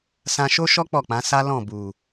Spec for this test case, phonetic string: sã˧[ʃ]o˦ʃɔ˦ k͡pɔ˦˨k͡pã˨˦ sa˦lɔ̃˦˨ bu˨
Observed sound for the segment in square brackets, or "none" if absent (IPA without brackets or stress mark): ʃ